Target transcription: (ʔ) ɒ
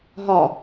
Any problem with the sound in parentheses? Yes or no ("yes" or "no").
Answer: yes